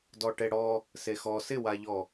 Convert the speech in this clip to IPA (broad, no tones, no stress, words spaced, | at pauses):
dɔʈeɽɔ | sexɔ sɪwaʎɔ